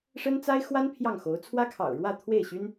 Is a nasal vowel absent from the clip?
yes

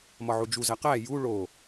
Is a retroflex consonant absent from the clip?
no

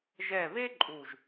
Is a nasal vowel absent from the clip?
yes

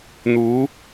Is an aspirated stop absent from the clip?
yes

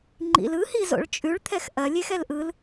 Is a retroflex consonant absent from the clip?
no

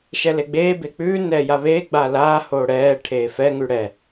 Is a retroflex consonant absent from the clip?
no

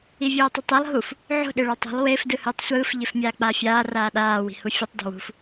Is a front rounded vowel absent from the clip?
yes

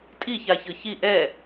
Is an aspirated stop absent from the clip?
yes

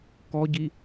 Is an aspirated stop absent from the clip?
yes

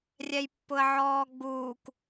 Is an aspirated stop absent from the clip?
yes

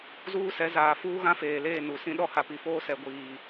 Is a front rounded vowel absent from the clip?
yes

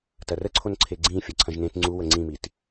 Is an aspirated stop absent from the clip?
no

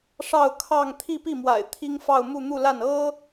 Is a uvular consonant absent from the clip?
yes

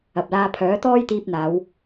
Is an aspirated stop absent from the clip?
no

